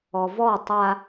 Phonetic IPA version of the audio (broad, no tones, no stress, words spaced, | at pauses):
ɔvɔ tˤa